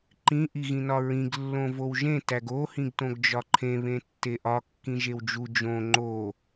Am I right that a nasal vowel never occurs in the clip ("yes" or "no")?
no